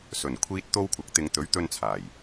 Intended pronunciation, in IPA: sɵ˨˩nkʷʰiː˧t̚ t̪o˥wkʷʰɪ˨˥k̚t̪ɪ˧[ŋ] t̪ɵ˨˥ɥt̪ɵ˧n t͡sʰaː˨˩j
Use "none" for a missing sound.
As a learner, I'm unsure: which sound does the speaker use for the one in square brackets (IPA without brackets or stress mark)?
ŋ